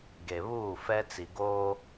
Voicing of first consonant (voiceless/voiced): voiced